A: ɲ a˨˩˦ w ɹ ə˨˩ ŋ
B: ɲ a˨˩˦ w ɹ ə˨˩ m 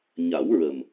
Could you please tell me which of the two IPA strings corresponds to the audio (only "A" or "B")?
B